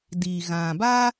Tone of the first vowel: low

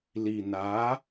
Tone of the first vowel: low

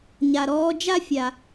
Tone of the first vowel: low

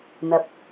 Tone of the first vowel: low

